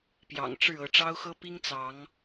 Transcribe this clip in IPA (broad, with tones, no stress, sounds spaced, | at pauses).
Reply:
p j ɑ̰˨˩ ŋ ʈ͡ʂ ɻ̩˥˨ ɤ˨˦ ʈ͡ʂ ɑ˦ ʊ̯ x ɤ˦ p i˦ ŋ t͡s ɑ˨˦ ŋ